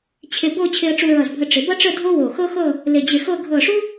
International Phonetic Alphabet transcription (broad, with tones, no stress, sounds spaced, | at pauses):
t͡ɕʰ ɪ˧ b o˥˧ t͡ɕʰ ɪ˧ ə̯ ʈ͡ʂ u˧ ɹ ʌ˧˩ z bʱ ə˧ ʈ͡ʂ ɪ˩˧ b ʌ˥ ʈ͡ʂ ə˥˧ dʱ o˥ w o˧˩ x ɤ˥ x ɤ˥˧ | l ɪ˧˩ d͡ʑ ɪ˧˩ x ɤ˥˧ ɡʱ ɤ˧˩ ʂ u˥